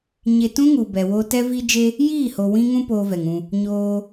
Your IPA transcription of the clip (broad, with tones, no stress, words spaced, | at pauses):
ɲe˧tũ˦ŋu˨ bɛ˨wo˧ tɛ˧vi˧d͡ʒe˧ | jiː˦˨ho˨wĩ˧ŋũ˧ poː˦vɛ˨ŋũ˧ | ɲoː˧